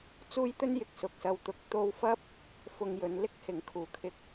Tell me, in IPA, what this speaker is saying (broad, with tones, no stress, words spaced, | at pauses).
t͡suː˥jt̪ɵ˥njɪ˨k̚ sʊ˨k̚sɐ˧wt̪ʊ˧k̚ t̪o˧wfɐ˥p̚ | fʊ˧ŋjɵ˨˧n lɪ˥k̚hɪ˨˥ŋkʰuː˨kʰɪ˧k̚